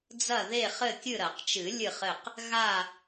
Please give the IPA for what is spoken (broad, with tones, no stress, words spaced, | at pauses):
d͡zɐ˦˨ðe˦˨χɘ˦˨ kʲɨ˦˨ɾɐ˨˩˦qt͡ʃɨ˨˩˦ lʲɨ˦˨χɘ˦˨q | ɣa˦˨